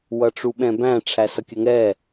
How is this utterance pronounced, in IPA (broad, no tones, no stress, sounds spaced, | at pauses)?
w ʌ ʈ͡ʂ u ɓ ɛ̃ b æ̃ ʈ͡ʂʰ æ s ʌ kʲ ə ŋ ɛ